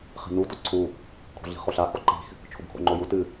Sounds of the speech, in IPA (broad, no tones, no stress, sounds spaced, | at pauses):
χ i̤ n u d ɔ ǀʰ u | kʰ o̤ ɮ i̤ χ o ɬ a x ɔ ǃ i̤ x | t͡ʃʰ o b kʰ o̰ ŋ͡ǃ o j u t ɨ